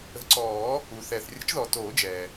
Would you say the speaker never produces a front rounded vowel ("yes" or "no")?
yes